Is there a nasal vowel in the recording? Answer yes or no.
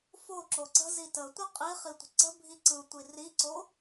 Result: no